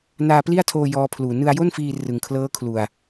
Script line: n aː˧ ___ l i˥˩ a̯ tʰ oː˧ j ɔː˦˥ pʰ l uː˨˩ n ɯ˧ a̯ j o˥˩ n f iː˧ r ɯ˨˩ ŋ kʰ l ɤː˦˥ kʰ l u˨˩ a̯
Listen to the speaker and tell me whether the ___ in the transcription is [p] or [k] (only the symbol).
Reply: p